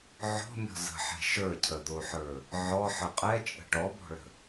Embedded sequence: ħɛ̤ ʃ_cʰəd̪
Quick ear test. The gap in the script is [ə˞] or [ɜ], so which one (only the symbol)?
ə˞